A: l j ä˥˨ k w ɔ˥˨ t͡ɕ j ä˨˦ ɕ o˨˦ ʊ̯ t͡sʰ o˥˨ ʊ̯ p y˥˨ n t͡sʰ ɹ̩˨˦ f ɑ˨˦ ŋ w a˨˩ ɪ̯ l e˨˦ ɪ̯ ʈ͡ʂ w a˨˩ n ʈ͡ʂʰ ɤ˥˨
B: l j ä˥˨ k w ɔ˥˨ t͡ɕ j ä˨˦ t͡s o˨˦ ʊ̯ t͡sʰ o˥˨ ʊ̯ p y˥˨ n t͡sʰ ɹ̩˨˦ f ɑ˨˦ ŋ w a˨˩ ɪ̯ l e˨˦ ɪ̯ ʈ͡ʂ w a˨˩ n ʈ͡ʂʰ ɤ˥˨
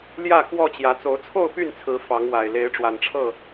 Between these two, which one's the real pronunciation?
B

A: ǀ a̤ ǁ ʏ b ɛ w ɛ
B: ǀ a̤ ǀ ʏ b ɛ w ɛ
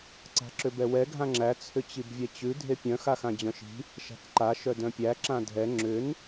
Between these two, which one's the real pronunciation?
A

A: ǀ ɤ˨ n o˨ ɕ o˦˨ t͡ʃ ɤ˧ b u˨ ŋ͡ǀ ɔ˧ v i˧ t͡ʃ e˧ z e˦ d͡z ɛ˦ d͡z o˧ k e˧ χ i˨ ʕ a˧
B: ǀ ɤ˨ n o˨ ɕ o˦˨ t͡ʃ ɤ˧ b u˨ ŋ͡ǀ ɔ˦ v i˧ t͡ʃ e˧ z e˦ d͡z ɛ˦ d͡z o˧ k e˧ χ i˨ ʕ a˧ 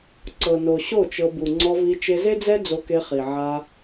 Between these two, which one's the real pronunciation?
A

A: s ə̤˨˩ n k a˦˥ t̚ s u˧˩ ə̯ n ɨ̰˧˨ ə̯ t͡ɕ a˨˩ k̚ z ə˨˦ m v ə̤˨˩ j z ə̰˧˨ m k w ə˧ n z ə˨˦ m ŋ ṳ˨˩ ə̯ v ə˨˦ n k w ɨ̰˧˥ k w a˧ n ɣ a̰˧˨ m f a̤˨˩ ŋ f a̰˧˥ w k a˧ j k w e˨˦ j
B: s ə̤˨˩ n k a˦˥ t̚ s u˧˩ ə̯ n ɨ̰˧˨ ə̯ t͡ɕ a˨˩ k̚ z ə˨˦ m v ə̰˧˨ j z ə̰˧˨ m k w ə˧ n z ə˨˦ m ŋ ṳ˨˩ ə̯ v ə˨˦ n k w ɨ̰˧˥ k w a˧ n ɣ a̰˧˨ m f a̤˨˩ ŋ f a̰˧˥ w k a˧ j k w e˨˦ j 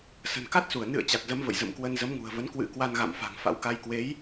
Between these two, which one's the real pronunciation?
B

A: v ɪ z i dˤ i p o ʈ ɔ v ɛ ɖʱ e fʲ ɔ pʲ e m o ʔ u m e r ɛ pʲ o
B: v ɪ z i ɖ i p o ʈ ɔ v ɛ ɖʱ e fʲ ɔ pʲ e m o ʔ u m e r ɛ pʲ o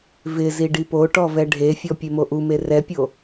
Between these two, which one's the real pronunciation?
B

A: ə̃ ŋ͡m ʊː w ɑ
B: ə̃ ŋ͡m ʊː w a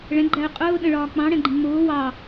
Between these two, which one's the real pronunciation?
A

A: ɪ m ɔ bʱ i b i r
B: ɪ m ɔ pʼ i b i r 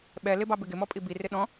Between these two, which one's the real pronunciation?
B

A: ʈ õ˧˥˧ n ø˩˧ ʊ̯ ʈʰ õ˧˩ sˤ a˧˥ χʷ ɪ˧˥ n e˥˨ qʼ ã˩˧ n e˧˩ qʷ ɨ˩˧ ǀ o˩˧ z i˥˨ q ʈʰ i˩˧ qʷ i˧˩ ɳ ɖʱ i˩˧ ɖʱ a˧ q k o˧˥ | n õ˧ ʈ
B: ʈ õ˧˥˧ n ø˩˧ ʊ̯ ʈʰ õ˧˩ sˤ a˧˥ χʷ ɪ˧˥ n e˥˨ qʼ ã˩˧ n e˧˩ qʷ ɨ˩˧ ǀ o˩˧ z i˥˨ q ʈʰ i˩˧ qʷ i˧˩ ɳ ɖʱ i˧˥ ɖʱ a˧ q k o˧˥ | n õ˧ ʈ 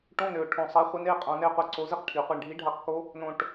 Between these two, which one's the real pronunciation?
B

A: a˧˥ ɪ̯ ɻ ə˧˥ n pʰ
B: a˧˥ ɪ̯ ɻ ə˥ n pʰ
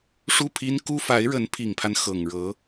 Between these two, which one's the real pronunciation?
A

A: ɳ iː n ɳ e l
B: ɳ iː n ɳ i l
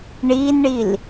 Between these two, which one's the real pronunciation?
B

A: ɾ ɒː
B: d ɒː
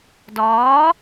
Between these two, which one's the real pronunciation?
B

